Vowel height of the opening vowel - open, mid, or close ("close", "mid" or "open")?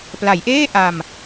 open